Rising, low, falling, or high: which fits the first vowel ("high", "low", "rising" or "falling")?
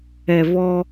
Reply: low